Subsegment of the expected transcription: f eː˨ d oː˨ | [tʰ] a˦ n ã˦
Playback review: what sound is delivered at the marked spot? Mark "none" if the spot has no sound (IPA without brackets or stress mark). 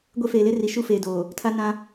tʰ